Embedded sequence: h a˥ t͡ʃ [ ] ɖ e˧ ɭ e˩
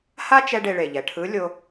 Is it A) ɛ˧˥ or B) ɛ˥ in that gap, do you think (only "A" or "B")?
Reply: B